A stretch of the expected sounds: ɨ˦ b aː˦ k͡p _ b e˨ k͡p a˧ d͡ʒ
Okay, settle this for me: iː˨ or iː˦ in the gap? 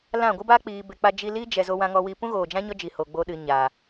iː˨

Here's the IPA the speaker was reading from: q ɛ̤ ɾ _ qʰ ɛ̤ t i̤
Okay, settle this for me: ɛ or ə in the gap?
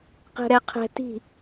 ɛ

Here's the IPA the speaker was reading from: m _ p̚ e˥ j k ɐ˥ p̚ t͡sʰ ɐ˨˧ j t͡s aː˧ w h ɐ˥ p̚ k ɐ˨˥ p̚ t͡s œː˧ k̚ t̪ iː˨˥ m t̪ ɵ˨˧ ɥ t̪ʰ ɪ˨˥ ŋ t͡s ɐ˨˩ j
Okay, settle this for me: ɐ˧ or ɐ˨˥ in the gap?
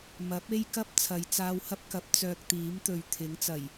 ɐ˨˥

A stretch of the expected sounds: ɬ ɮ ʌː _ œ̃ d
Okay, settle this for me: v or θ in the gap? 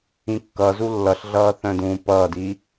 θ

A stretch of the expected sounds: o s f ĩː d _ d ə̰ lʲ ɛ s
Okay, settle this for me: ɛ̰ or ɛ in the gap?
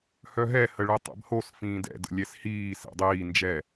ɛ̰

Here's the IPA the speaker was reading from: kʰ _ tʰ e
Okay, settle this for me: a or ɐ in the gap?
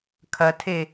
ɐ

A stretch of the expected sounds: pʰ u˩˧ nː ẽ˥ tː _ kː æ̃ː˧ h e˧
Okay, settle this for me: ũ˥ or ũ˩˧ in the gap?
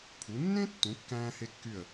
ũ˩˧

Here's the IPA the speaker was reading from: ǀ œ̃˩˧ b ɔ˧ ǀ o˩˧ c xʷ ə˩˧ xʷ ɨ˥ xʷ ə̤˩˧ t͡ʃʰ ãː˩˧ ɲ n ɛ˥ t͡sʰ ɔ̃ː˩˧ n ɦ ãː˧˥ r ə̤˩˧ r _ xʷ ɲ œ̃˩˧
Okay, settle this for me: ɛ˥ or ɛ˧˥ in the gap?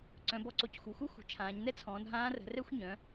ɛ˥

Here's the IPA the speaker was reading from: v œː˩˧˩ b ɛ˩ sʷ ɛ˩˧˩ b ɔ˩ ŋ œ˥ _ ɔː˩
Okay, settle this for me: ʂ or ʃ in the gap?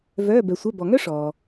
ʂ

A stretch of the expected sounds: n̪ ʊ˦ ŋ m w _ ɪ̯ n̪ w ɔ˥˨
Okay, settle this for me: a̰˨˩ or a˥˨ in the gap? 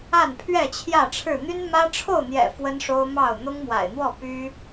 a̰˨˩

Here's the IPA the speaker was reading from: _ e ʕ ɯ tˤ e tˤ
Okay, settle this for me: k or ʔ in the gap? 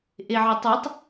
ʔ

